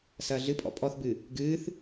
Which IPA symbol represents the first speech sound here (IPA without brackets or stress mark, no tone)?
s